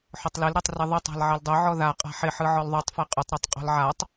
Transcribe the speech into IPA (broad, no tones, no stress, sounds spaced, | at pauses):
ħ ʊ tˤ l ɪ l ɾ ɛ tˤ r ɪ ðˤ ʊ tˤ a̤ l ʕ ɪ l dˤ ʊ ʕ ɔ ð a qʼ a̤ ħ ɪ ħ ɯ ʕ ɔ l ðˤ u tˤ f ɛ qʼ ʊ tˤ ɾ u tˤ qʼ ɔ̤ l ʕ a tˤ